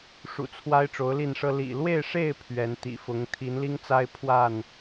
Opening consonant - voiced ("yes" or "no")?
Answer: no